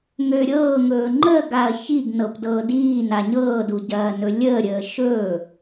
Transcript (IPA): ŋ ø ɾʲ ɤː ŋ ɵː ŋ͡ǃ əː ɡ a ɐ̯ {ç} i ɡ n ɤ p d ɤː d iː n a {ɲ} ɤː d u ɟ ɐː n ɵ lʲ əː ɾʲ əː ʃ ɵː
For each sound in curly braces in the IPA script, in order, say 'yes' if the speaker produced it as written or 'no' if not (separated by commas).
yes, yes